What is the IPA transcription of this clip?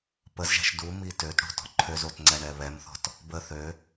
p ə z ʒ ɛ̤ ʃ d u m i t ø t ɽ ṳ t ɔ̤ ǃʰ ø z o t ŋ͡ǀ ɛ ɳ ɛ β ɛ m θ ɔ̤ t | b ə θ ø

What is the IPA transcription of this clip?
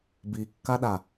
b i kː a ɗ a

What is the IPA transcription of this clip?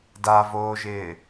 d a v oː ʒ ɪː

